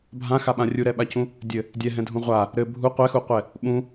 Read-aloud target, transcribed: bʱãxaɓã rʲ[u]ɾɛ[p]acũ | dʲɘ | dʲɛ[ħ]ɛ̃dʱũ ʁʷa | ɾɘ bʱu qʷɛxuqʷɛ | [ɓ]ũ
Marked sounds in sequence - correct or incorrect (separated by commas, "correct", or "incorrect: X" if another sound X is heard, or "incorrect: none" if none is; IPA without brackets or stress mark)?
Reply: correct, incorrect: ɓ, incorrect: ɦ, correct